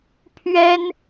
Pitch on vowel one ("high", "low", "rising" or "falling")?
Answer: high